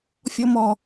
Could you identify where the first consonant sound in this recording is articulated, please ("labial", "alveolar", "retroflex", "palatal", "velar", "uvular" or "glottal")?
labial